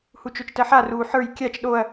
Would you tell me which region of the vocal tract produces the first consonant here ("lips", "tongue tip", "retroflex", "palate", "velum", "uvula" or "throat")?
throat